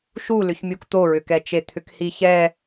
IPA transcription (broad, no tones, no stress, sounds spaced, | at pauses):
ʃ u l ʏ ç mʲ u k t̪ o ɹ ʏ k ɛ t͡ʃ e t̪ʰ ʏ k h i ç ɛ